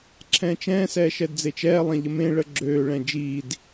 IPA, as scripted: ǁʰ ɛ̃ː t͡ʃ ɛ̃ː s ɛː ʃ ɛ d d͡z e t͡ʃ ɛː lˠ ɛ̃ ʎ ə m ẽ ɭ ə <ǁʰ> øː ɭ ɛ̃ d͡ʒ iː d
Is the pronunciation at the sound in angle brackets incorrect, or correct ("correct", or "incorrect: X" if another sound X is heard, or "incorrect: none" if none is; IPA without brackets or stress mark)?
incorrect: ɡ͡ǁ